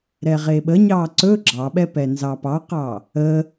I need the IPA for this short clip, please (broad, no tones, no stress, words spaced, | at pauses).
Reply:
ɾɛʁeɓəɲɑ ǀɵ ɡ͡ǁɑɓɛ pɛnzɑpɑqɑ | ə